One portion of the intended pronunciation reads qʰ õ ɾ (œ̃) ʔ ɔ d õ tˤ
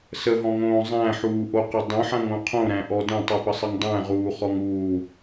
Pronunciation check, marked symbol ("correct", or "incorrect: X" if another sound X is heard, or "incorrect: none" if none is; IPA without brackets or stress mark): incorrect: æ̃